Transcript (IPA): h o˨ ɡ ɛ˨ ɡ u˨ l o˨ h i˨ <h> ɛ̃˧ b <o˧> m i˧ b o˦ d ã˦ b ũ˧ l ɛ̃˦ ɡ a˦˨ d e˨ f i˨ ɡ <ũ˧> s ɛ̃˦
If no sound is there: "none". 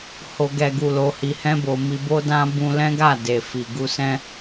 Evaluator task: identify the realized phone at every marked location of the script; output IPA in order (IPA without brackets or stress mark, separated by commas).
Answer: h, o˨, u˧